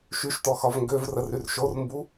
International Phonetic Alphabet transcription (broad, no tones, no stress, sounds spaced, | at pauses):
ʃ y ʃ t ɔ x ɒ v ŋ ɡ ø v r ə r y r ʃ o r m b u